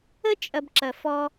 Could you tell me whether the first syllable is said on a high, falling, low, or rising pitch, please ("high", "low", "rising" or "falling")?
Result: high